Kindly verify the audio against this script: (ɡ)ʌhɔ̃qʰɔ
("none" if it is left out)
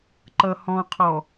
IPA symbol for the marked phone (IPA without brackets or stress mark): ǃ